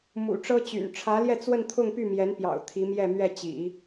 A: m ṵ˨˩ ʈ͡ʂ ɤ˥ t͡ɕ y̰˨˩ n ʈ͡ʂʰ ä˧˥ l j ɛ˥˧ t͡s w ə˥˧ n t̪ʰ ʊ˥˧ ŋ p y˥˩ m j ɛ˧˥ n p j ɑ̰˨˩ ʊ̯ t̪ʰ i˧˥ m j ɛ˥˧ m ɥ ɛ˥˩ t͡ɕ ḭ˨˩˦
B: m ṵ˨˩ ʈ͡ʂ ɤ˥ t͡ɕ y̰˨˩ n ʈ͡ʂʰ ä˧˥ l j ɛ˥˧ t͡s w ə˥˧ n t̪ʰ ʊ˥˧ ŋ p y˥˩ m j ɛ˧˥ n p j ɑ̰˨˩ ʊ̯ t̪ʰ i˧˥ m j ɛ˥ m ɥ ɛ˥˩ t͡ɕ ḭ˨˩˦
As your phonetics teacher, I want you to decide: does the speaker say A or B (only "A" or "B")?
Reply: A